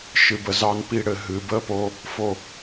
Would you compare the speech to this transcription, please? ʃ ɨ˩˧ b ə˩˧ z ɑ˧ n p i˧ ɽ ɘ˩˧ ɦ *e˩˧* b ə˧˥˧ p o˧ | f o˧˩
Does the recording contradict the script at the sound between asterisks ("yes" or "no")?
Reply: yes